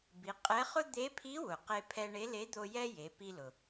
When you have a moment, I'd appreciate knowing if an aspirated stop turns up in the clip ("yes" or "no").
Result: yes